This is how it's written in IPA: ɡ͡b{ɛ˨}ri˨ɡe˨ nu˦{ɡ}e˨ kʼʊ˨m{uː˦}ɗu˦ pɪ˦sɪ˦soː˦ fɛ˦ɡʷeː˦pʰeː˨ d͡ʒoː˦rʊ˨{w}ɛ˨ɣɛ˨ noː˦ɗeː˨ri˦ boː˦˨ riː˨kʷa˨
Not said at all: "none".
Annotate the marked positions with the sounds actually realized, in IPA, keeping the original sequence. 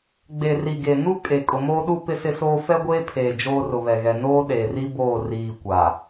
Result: e˨, kʼ, oː˦, β

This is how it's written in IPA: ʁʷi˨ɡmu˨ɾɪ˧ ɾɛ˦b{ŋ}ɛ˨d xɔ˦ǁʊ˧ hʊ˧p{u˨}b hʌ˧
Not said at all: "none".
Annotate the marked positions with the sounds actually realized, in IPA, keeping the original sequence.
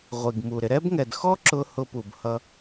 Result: ŋ, u˨

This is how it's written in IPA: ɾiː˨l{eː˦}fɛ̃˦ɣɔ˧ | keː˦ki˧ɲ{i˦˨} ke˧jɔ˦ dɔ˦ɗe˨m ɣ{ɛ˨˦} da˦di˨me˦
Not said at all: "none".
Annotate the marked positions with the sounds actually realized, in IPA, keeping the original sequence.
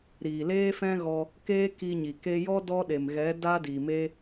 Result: eː˦, i˨, ɛ˨˦

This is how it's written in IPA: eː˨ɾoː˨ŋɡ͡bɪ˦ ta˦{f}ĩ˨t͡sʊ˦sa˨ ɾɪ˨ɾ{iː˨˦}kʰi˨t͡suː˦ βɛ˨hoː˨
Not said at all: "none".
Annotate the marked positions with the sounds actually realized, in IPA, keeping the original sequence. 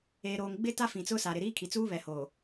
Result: f, iː˦

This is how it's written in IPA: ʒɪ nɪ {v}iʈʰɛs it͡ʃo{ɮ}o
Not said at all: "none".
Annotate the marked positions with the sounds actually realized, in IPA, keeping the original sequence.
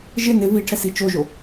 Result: v, ʒ

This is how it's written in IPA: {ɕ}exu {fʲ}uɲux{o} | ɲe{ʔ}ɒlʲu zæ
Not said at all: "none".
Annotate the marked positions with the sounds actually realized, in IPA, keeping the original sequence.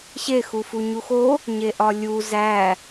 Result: ɕ, f, o, ʔ

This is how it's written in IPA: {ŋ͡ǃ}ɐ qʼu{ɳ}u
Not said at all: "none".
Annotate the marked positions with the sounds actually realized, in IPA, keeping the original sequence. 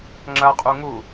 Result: ŋ͡ǁ, ŋ

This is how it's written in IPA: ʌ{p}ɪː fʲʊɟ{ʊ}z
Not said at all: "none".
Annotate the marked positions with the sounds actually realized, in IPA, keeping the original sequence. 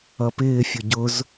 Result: p, ʊ

